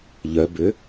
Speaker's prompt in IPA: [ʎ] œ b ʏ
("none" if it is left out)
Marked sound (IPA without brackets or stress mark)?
ʎ